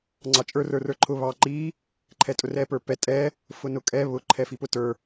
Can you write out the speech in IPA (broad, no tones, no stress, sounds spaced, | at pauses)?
ŋ͡ǀ ɑ t͡ʃʼ ə˞ r ə˞ r ə˞ ǃʰ ʊ β ɑ ǃ i | ǃʰ ɛ tʼ ʊ r ɛ p ə˞ p ɛ tʼ ɛ | f ʊ n ʊ kʼ ɛ β ʊ ǃʰ ɛ f i p ʊ t ə˞